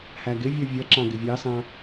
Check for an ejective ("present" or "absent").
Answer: absent